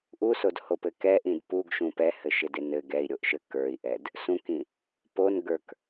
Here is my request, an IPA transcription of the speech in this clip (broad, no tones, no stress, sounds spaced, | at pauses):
ʔ u s o d h o p ɘ k ɛ ʔ ĩ d p u ɡ ʃ ũ p ɛ h ɘ ʃ ɪ d ɪ n ɘ ɡ ɛ i̯ ɾʲ o ʔ ʃ ɘ k ə˞ i̯ ʔ ɛ d | s ũ k ĩ | p o n ɡ ə˞ k